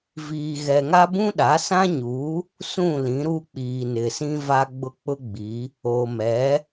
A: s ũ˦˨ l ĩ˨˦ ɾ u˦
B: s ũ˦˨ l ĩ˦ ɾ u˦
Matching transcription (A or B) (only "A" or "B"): A